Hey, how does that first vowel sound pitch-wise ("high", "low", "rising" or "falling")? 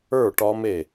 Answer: falling